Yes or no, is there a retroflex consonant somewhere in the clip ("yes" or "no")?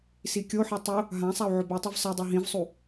no